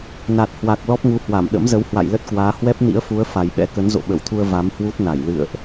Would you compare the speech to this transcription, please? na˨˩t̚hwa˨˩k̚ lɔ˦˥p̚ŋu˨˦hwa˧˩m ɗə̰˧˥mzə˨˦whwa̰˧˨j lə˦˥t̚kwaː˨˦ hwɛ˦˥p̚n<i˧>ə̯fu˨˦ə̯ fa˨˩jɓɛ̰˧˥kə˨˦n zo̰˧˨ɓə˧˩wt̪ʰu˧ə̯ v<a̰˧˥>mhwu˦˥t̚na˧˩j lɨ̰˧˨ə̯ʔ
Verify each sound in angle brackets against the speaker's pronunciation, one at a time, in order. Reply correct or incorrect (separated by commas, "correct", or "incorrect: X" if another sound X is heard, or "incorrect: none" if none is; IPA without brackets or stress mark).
incorrect: ḭ˧˥, incorrect: a˨˦